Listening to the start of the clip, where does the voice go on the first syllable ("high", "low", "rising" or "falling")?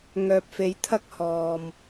low